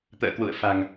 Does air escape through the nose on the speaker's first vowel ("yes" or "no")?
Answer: no